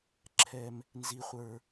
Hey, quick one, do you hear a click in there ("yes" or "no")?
yes